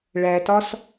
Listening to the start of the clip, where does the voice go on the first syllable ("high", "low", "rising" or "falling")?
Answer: low